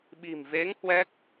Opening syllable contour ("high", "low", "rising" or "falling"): low